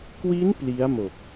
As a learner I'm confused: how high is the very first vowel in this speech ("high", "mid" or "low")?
high